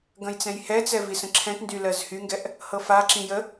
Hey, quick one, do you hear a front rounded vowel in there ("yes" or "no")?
yes